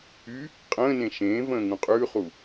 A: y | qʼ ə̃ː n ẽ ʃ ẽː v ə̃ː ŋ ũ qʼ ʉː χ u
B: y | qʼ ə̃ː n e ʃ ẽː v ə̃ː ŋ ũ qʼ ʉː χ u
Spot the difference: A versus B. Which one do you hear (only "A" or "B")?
A